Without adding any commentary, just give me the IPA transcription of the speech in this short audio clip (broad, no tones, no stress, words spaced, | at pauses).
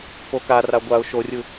pokara ɡʷaʊ̯ ʃorʲɯ